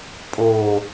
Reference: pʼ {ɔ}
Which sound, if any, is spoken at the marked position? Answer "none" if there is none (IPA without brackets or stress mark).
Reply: o